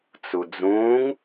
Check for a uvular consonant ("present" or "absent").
absent